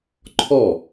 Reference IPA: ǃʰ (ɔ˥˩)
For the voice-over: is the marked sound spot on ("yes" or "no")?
yes